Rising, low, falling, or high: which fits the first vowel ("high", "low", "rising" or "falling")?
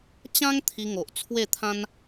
high